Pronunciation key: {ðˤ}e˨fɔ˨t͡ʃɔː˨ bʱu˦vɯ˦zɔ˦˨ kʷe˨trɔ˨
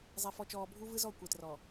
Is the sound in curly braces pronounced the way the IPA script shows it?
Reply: no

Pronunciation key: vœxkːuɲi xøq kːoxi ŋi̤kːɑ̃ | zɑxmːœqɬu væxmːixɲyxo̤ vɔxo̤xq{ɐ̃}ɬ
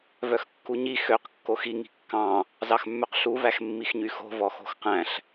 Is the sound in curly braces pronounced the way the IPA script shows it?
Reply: no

